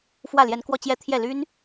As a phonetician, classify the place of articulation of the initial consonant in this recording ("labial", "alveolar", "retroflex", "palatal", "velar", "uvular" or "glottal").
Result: labial